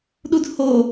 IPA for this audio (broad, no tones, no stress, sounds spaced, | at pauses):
ɗ u d h o